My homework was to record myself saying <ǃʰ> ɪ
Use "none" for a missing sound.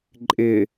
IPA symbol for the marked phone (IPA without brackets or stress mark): ǃʼ